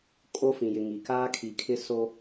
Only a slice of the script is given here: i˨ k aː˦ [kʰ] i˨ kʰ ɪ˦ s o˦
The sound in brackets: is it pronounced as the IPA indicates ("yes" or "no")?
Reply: yes